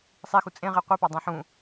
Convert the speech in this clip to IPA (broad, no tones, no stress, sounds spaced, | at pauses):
sˤ i x u t͡sʼ ẽ ʁ e qʷ i p ɒ dˤ ẽ ħ ũ